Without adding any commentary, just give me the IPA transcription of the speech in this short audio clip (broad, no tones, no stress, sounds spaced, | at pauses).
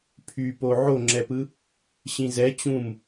pʰ y p o ʕ o ŋ͡ǁ ɛ p ɯ | ɕ ĩ z ɛ t͡ɕ ũ m